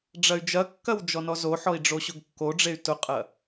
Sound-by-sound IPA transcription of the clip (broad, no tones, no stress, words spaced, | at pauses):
ɖ͡ʐɐy̯d͡ʒɐkːɐw d͡ʒɔnɔzoħɔi̯ ɖ͡ʐoɕʊɡkːoɖ͡ʐey̯ tʊqʼɐ